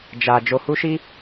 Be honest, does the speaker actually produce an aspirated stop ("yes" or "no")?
no